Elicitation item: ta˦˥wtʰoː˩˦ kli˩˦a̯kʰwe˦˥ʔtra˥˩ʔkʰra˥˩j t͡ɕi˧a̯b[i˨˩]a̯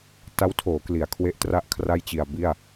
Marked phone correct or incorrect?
incorrect